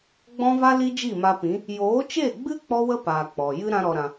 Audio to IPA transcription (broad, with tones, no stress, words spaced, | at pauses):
ɡ͡bɔ̃˦va˦ li˦d͡ʒi˦˨ma˧pĩ˨˦ | joː˨˦t͡ʃe˦˨ɡ͡bɨ˦ k͡pɔ˦wə˦paː˨ k͡pɔ˨ jɨ˦ ɾã˦ɾɔ˧ɾã˧